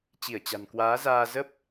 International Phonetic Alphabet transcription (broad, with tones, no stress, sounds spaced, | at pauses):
t͡ɕ i˧˩ ə̯ t͡ɕ a̤˨˩ n k w aː˨˦ z aː˧ z ə˦˥ p̚